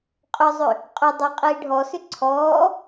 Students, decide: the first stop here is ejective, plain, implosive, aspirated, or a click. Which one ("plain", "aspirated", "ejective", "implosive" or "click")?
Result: ejective